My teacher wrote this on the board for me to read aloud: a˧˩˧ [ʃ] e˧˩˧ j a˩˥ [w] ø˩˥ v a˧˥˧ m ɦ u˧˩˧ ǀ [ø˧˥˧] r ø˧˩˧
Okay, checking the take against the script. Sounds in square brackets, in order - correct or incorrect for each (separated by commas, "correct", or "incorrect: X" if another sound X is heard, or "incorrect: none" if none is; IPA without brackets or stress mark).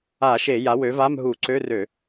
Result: correct, correct, correct